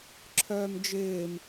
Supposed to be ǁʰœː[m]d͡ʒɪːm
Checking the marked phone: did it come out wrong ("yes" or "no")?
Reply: no